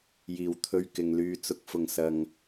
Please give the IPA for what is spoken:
j iː˨˩ w t̪ʰ ɵ˧ ɥ k ɪ˨ ŋ l yː˨˧ t͡s ʊ˨ k̚ f ʊ˨˩ ŋ s ɐ˨ ŋ

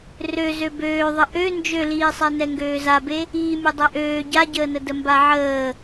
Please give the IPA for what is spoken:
r ø z ø b øː ðˤ ə ʔ ø n d͡ʒ ø l iː sˤ ɛ n ɛ ŋ ɡ øː z a b e | iː mʲ e dˤ ɛ ʔ øː ɟ a ɟ əː n ə d ə m b a ʕ əː

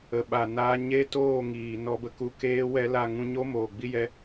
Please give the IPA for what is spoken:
ə˨ ɓ a˨ n aː˧ ɲ e˦ t oː˦˨ ŋ iː˨ n ɔ˧ b ə˧ k u˧ k eː˦ w ɛ˦ l a˦˨ ŋ ũ˧ ɲ o˦ m oː˨ ɡ͡b i˦ j ɛ˧

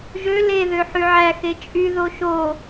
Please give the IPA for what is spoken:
ʒ ø l e ð ø ħ y ʕ æ x e t͡ʃʼ y ð o ʃ o

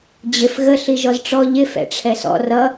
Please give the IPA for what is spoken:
d͡ʑ ɪ f ɣ ə ɬ i ʒ ɔ z ʈ͡ʂ ɔ ʎ ɪ f ɛ̰ ʈ͡ʂʰ ɛ s ɔ̰ r ʌ

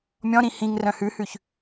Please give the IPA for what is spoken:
mʲ ɔ̃ ɾ ĩ h ĩ ŋ r œ̃ h ʉ h ʉ ç

